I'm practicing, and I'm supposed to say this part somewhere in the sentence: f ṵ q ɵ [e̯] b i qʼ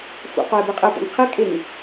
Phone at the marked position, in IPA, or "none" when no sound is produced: e̯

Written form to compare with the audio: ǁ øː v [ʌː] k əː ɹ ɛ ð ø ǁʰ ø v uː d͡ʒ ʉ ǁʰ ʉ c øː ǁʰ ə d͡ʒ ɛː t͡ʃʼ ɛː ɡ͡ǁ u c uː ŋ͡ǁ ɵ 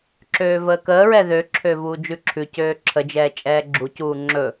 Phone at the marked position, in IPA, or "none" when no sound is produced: əː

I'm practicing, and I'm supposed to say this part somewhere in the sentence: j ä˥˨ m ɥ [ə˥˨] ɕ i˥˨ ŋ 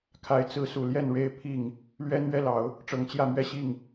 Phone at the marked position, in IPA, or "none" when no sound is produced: ɛ˥˨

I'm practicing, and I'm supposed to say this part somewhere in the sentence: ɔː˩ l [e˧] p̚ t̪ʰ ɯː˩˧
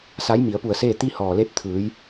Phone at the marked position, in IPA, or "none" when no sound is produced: e˧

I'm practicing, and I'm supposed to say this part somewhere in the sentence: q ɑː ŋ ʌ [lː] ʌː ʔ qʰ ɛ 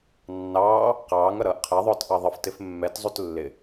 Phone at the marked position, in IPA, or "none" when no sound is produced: ɾ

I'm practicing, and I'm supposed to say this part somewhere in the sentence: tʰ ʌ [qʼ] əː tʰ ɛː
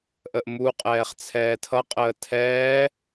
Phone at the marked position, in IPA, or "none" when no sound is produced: qʼ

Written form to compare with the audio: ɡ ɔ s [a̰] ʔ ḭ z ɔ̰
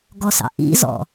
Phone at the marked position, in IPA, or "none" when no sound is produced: ɑ̰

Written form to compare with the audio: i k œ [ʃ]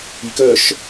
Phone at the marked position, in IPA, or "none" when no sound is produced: ʃ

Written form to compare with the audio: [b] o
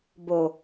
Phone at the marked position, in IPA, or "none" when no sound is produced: b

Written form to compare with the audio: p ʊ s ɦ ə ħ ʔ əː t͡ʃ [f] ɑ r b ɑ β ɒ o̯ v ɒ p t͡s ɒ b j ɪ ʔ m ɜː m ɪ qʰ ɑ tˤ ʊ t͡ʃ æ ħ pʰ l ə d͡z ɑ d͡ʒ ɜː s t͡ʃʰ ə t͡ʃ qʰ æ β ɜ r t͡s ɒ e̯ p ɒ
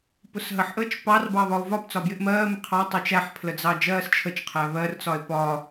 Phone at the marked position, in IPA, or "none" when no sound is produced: p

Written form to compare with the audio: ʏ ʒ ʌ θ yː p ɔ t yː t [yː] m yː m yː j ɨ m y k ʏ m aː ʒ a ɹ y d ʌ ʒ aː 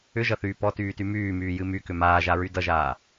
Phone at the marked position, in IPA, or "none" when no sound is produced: y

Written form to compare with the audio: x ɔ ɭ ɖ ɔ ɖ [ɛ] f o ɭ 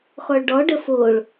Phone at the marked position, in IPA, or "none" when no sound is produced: ə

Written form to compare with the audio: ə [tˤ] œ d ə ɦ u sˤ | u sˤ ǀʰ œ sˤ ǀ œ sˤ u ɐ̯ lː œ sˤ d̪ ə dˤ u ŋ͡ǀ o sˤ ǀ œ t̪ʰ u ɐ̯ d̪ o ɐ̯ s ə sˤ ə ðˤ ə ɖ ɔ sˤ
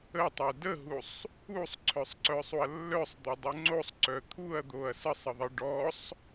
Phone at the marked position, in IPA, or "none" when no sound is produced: tˤ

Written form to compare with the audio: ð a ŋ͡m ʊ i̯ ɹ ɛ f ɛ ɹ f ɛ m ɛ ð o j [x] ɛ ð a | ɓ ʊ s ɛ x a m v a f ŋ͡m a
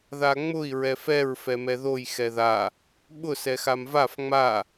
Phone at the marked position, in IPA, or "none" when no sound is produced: x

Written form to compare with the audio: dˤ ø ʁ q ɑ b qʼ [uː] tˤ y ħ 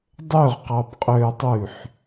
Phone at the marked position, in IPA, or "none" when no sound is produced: øː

